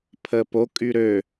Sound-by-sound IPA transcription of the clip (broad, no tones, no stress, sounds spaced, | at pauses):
pʰ ə p o kʼ y ɾ ø